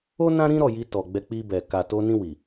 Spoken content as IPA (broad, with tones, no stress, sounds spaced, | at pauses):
o˦ n ã˦ ɾ ĩ˦ ɾ ɔ˦˨ j i˧ t ɔ˨ ɡ͡b ɛ˧ k͡p i˧ b ɛ˨ k a˨ t o˧ n ĩ˧ w i˨